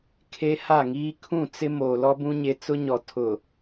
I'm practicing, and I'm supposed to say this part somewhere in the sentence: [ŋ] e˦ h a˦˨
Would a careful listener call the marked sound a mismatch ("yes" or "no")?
yes